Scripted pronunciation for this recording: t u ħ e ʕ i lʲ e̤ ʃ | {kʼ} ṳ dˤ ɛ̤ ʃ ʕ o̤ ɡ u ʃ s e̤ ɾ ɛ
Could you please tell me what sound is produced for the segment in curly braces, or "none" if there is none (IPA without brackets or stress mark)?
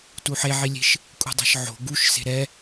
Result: kʼ